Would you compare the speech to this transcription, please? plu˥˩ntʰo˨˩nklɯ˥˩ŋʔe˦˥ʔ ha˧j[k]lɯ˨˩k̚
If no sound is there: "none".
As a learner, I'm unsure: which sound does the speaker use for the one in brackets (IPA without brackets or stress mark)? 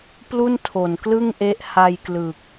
k